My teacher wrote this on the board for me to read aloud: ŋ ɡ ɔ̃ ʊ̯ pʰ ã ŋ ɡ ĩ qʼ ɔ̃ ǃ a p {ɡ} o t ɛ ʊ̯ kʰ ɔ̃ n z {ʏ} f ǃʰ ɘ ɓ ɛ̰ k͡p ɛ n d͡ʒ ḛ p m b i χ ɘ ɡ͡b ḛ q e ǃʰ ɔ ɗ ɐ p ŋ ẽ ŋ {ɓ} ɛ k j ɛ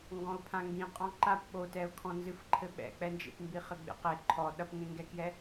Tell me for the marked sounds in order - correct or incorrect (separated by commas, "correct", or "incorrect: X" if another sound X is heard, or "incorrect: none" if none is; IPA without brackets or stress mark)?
incorrect: ɓ, incorrect: ɨ, incorrect: ɡ